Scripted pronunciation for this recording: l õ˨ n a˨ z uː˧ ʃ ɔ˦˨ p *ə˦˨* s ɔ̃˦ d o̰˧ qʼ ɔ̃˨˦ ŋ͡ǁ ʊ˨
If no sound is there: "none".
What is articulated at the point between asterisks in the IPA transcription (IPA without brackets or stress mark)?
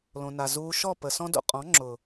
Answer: ə˨